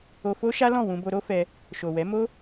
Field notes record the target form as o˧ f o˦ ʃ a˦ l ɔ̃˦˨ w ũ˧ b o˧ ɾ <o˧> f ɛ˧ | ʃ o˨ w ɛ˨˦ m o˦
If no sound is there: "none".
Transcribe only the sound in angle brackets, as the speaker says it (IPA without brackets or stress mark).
o˦